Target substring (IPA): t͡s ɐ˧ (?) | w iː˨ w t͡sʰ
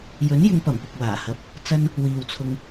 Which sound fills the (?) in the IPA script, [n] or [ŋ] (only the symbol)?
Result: n